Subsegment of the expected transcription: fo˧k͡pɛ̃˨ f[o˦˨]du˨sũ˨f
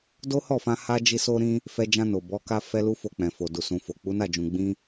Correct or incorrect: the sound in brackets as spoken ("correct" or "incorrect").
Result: incorrect